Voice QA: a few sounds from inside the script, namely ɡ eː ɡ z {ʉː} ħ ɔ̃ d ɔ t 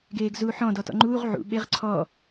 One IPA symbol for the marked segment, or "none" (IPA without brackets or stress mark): uː